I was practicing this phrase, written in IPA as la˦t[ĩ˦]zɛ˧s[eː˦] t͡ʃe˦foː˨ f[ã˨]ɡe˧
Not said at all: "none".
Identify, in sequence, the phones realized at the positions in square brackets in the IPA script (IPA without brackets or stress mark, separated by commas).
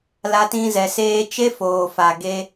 ĩ˦, eː˦, a˨